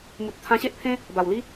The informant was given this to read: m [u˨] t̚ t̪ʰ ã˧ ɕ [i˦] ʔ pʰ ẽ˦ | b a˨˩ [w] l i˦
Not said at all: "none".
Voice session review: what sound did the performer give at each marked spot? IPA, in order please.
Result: u˨, e˦, w

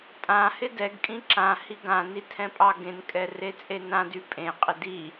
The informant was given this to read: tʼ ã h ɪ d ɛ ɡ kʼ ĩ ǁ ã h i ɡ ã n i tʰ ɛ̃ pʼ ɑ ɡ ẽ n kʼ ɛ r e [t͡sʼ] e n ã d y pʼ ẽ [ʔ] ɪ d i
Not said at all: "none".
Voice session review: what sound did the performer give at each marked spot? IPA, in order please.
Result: t͡sʼ, qʼ

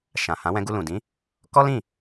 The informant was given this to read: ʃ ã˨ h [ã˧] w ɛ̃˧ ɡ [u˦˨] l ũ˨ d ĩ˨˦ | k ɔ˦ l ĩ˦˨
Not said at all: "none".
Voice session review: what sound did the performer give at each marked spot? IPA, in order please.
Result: ã˨˦, u˧

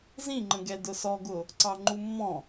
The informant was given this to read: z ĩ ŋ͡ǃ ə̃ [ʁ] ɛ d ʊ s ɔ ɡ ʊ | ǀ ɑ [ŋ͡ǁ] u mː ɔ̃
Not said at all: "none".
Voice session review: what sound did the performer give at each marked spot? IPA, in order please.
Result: ɡ, ŋ͡ǃ

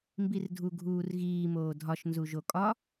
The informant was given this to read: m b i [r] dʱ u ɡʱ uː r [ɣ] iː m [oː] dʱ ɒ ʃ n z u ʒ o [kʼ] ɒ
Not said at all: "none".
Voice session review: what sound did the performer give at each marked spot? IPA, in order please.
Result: r, ɣ, oː, kʼ

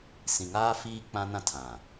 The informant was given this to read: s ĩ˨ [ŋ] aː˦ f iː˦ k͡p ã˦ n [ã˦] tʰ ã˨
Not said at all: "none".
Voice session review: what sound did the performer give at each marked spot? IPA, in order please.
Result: ŋ, ã˦

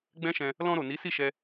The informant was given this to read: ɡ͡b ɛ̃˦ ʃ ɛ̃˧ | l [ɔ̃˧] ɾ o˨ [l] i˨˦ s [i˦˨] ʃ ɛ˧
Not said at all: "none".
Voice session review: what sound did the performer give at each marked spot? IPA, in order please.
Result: ɔ̃˧, n, i˦˨

